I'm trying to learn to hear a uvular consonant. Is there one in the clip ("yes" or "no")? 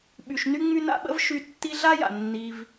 no